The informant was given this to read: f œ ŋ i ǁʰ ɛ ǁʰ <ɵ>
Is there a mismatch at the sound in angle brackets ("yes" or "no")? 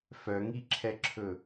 no